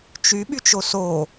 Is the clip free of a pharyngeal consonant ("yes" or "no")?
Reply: yes